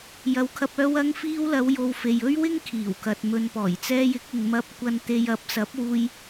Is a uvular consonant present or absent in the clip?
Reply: absent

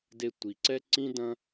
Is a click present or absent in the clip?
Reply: present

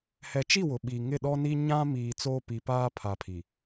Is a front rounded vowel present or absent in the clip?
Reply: absent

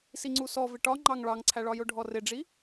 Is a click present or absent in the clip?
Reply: present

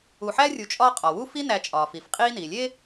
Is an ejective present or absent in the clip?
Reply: present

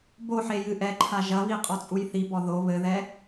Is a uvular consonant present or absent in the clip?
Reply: present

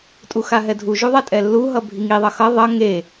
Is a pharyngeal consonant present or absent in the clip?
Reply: absent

